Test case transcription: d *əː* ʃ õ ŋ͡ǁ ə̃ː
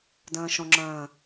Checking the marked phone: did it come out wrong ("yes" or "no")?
yes